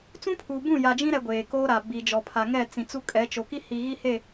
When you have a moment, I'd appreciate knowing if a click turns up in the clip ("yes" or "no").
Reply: no